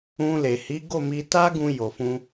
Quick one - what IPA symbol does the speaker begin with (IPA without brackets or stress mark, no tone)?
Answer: ũ